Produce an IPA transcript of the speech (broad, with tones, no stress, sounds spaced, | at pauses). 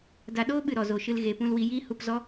d a˧ ɗ oː˦ ɓ ɨ˨ ɾ ɔ˨ z o˨ ʃ ɨ˧ l ɣ e˨ p ũ˧ l w i˧ j iː˦ h u˧ p z ɔ˦